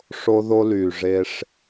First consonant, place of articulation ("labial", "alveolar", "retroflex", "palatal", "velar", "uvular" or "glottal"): retroflex